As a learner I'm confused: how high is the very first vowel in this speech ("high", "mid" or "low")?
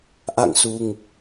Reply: low